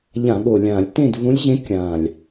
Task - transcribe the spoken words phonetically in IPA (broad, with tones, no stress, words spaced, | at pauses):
ʎã˧˩˧ɠo˨˩lʲã˧˩˧lʲ tẽ˥˨dvũ˧˥lʲʑẽ˧˥ kʲã˨˩lʲ